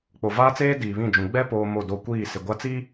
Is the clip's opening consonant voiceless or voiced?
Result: voiceless